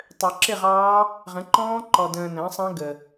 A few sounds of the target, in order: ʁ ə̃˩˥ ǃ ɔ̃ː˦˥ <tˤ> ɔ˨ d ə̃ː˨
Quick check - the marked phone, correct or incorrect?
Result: incorrect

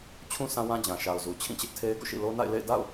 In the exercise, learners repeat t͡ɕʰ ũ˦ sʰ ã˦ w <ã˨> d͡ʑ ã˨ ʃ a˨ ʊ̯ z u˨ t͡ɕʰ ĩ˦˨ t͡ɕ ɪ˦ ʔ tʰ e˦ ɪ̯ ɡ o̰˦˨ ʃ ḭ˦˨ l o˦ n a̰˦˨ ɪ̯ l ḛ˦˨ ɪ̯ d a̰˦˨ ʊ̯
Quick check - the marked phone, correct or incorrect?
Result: incorrect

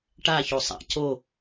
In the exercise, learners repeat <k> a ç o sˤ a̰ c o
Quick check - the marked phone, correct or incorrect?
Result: incorrect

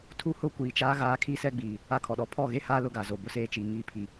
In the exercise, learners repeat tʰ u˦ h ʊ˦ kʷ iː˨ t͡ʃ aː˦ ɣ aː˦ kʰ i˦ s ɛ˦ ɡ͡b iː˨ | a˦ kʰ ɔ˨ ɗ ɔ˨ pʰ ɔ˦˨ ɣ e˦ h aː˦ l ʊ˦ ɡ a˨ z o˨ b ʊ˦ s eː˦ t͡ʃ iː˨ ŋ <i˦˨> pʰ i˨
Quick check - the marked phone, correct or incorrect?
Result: correct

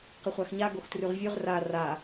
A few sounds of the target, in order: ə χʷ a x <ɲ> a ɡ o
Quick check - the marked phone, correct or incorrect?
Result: correct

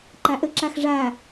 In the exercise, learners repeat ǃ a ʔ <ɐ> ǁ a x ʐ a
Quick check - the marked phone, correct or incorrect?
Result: incorrect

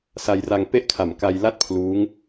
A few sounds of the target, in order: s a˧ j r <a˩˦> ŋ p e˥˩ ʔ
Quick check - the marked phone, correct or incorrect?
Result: incorrect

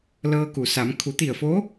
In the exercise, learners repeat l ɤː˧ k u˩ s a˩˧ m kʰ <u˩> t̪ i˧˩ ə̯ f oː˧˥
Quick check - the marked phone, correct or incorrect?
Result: incorrect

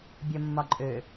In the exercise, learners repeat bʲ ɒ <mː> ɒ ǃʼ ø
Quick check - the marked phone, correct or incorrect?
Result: correct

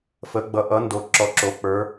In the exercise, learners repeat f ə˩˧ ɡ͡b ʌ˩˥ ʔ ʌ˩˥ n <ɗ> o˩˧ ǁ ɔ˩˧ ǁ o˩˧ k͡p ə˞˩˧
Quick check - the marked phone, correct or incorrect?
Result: incorrect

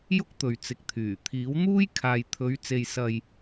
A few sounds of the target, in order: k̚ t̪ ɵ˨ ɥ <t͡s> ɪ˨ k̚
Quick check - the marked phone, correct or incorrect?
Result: correct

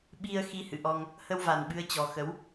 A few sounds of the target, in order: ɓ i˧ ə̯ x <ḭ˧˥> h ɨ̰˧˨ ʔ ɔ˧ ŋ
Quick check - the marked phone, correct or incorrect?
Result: incorrect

